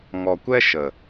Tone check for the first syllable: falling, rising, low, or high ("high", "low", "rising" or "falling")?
low